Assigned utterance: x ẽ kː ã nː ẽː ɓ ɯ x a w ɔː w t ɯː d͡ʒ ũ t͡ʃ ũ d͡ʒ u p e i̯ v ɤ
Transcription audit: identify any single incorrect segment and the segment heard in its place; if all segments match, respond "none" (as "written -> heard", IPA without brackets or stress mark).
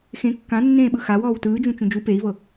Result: none